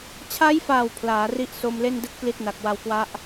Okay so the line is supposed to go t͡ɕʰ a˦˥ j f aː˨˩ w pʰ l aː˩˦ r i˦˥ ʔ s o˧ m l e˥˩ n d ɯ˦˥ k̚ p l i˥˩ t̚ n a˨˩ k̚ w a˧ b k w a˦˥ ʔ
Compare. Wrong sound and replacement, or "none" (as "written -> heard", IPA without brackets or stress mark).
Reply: b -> w